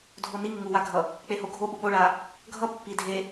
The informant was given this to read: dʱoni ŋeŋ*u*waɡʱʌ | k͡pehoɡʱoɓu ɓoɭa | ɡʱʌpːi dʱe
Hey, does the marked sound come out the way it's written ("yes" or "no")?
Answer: yes